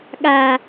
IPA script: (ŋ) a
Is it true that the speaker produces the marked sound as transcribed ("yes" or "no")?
no